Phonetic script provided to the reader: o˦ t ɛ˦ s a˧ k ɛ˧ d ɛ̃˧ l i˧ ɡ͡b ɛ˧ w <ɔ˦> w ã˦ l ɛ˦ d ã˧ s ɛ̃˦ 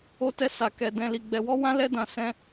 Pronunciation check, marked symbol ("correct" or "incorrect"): correct